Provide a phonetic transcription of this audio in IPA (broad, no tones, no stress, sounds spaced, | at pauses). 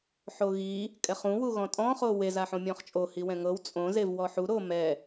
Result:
ħ o ɣ i | kʼ ɛ χ ũ w u ɣ ɔ̃ tʼ ɔ̃ χ o w e z a ħ õ mʲ ɔ̃ χ t͡ʃʼ o h i w ɛ̃ ŋ ɤ w t͡sʼ õ z e v w ɔ ħ u ɾ o m ɛ